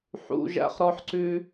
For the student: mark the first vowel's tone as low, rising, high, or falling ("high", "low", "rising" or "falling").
high